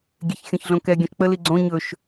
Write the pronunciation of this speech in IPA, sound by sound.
ɡʲ e ç xʲ ɔ̃ ç ɮ õ k ɛ ɡʲ õ ʃ k͡p ə l i ɡ͡ǀ õ ɲ ɵ ʃ

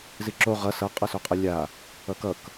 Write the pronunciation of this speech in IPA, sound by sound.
z i ǁ o ʁ ʌ s ʌ qʼ ʌ s o qʼ ʌ lʲ a | ʌ k ʌ k

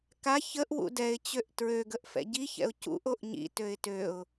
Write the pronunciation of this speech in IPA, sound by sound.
k a ç ə ʔ w ṵ d ɛ ɪ̯ t͡ɕ ø ʔ t ɹ ø ɡ ə ʔ f ɛ̰ ɟ i ç ɛ̰ ʊ̯ c ṵ ʔ o ʔ ɲ ḭ t ø ɪ̯ t ø ʊ̯

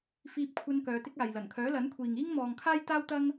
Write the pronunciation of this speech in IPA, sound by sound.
f iː˧ p̚ kʷʰ ɐ˧ n k œː˨˧ t̪ ɪ˥ k̚ aː˨ j l ɐ˨˩ n kʰ œː˨˥ l ɐ˨˥ n kʷʰ iː˨ ŋ iː˥ ŋ m ɔː˨ ŋ kʰ aː˥ j t̪ aː˥ w t̪ ɐ˥ ŋ

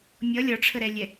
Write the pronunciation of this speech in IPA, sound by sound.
mʲ ʌ lʲ ɒ ʈ͡ʂʰ ə ɾ ɛ lʲ ɛ

